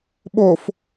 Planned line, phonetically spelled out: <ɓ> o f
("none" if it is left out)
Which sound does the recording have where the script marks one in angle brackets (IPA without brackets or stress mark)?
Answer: ɓ